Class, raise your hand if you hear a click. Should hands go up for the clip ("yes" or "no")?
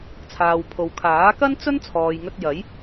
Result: no